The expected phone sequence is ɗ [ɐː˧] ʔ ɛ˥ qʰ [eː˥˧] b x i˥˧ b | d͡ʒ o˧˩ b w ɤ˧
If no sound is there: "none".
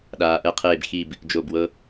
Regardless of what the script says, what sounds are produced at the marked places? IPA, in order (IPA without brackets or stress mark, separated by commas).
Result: aː˧, eː˥˧